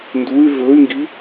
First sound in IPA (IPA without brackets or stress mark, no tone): n